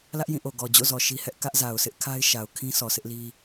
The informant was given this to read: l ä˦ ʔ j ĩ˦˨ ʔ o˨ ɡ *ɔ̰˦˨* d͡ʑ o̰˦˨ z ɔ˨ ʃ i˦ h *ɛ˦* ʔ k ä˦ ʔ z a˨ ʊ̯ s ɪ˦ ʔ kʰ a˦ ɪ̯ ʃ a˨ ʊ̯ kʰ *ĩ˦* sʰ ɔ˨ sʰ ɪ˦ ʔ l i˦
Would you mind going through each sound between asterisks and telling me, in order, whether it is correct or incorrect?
incorrect, correct, correct

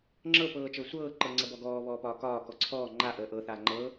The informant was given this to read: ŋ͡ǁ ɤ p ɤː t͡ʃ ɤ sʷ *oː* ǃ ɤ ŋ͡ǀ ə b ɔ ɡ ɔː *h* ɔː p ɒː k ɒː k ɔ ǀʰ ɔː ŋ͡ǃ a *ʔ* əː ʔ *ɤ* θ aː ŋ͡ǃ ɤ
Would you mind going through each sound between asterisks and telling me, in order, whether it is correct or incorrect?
incorrect, incorrect, correct, correct

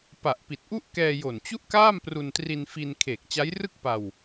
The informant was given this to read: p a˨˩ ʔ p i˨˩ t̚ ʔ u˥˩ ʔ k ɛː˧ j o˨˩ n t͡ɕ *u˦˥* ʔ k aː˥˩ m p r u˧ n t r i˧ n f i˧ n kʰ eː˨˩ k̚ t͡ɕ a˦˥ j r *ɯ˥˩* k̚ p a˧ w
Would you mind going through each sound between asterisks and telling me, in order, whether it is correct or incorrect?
incorrect, correct

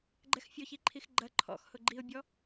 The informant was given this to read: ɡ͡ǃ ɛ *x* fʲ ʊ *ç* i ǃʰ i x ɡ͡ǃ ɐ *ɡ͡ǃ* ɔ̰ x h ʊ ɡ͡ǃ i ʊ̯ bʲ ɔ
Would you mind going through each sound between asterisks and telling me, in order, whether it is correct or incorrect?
correct, correct, incorrect

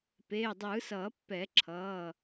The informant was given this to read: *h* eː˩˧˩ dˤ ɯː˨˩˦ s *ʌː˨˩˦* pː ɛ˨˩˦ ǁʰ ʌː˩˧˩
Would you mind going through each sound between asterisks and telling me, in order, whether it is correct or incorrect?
incorrect, correct

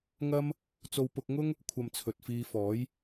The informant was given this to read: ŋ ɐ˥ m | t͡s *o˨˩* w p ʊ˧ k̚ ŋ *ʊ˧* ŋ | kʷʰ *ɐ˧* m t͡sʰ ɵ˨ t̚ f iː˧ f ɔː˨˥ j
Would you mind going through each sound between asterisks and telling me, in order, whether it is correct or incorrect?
incorrect, incorrect, correct

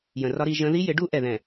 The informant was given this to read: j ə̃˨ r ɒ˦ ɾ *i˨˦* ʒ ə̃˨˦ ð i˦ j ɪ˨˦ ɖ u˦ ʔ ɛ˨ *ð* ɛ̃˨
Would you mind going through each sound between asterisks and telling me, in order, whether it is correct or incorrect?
correct, correct

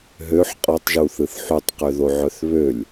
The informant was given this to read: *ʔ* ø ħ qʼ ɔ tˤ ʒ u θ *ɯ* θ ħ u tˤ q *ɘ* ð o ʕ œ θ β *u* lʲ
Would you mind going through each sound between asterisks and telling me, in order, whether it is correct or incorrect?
incorrect, correct, incorrect, incorrect

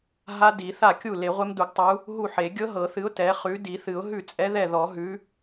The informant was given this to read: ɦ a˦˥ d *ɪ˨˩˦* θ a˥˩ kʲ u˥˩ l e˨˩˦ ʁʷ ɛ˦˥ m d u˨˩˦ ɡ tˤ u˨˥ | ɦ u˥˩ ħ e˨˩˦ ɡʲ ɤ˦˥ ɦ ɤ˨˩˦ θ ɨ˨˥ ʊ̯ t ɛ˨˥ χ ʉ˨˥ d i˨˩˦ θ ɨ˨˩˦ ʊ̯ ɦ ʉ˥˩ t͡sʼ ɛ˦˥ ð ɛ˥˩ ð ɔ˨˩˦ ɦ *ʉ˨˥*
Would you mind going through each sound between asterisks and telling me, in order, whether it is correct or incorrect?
incorrect, correct

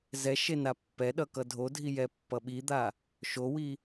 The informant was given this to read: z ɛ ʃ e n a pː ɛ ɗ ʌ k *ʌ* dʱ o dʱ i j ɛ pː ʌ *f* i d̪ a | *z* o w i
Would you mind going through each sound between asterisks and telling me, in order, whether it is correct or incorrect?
correct, incorrect, incorrect

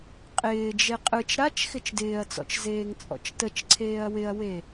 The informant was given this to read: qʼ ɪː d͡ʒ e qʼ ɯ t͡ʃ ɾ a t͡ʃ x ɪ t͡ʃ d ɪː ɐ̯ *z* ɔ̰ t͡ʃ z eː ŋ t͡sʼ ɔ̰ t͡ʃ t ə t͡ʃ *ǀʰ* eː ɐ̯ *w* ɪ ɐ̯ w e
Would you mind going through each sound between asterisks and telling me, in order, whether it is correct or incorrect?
incorrect, correct, correct

